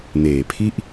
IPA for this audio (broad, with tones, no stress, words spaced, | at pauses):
neː˨˩pʰi˥˩ʔ